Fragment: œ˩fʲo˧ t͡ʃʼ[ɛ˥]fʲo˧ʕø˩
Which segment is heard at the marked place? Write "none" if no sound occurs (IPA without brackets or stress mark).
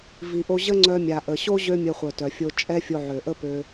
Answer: ɛ˥